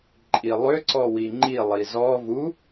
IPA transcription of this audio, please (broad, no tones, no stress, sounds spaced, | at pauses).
ǃʼ i lˠ ʏ ǀ ɔ w i ŋ͡ǃ i lˠ i z ɔ v u